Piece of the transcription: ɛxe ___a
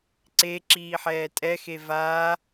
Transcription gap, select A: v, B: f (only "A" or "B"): A